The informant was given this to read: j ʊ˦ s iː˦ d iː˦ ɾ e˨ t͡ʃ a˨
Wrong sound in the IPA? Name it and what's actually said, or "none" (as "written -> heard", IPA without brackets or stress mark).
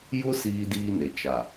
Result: ɾ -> n